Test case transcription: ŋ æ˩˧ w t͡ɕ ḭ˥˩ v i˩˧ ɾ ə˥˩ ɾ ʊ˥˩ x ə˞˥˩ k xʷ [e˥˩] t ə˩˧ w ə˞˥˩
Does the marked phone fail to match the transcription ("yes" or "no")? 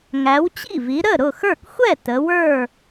yes